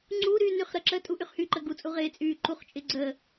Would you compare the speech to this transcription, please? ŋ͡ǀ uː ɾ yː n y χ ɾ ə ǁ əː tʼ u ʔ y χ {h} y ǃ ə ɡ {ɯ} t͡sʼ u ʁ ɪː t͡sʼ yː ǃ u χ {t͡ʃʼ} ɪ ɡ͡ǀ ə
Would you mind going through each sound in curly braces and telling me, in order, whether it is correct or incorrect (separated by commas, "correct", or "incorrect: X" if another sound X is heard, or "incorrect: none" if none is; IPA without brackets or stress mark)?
correct, incorrect: u, correct